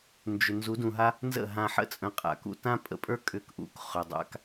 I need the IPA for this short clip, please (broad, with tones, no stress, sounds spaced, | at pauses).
n d͡ʒ ʏ˨ n z u˨˦ d ũ˨ ɦ a˦ | n z ə̰˦˨ ɦ ã˧ ħ ə̰˦ t͡sʼ ə̃˧ qʼ a̰˨ k ṵ˧ t ã˦ pʼ ə̰˧ pʼ ə˞˦ kʼ ʏ˧ k ʔ ṵ˧ k χ ʏ˨ dˤ a̰˧ k